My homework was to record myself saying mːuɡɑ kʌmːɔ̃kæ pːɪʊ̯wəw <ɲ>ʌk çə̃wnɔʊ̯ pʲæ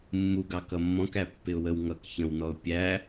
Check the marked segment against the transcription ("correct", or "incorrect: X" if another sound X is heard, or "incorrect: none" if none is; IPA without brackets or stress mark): incorrect: ŋ